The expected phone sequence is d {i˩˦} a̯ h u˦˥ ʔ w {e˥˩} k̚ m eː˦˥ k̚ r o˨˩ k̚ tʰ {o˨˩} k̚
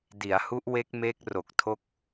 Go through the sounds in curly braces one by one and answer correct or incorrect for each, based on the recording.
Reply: correct, incorrect: e˦˥, incorrect: o˦˥

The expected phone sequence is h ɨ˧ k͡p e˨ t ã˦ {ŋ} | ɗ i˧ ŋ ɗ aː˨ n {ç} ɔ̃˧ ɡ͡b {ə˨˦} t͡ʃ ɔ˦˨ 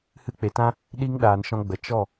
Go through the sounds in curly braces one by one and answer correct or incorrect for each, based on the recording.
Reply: incorrect: none, incorrect: ʃ, correct

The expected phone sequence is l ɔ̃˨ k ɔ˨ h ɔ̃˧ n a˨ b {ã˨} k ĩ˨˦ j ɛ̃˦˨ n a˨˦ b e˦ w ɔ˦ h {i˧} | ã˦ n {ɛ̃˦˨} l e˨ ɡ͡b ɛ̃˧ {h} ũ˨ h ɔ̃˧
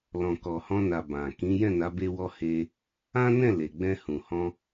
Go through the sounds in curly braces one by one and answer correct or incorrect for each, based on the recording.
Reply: correct, incorrect: e˧, correct, correct

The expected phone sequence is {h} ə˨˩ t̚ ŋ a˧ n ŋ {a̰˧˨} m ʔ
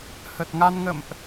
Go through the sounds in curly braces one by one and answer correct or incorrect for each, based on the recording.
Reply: correct, incorrect: ə̰˧˨

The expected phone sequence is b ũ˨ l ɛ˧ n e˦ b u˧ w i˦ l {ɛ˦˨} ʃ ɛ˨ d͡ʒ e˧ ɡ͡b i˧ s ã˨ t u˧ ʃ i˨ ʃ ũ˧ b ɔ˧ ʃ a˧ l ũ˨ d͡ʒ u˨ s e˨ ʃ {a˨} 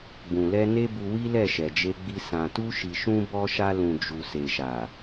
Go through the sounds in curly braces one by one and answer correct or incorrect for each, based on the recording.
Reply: correct, correct

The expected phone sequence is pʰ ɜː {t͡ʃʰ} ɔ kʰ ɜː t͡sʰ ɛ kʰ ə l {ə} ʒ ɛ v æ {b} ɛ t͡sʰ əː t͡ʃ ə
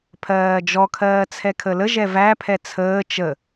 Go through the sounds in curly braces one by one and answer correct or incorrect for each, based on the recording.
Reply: incorrect: d͡ʒ, correct, incorrect: pʰ

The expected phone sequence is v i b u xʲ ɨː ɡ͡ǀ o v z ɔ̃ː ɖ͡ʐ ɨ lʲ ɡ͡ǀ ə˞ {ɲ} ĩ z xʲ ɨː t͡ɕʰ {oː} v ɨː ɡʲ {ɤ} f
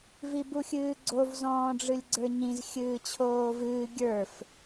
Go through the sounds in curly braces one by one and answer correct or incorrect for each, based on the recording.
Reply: correct, correct, incorrect: ə˞

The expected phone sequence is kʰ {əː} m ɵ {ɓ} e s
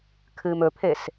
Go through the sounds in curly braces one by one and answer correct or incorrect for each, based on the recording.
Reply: incorrect: ɨː, incorrect: pʰ

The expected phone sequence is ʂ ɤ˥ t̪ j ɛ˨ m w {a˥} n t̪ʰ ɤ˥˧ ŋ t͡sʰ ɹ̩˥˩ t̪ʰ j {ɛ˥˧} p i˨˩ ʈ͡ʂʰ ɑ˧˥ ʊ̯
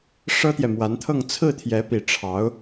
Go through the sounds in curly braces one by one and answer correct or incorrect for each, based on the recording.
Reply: incorrect: a˧˥, incorrect: ɛ˧˥

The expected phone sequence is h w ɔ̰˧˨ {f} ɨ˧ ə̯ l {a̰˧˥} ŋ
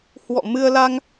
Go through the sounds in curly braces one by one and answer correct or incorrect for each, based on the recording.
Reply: incorrect: m, incorrect: a˧

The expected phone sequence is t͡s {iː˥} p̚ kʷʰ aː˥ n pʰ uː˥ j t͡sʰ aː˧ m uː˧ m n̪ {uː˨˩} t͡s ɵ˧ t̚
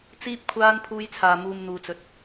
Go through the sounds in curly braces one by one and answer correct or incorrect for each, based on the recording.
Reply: correct, incorrect: uː˧

